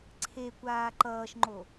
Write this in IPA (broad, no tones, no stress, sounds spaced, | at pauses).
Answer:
ǀʰ e kʷ aː ǃ ʌː ʃ ŋ͡ǃ o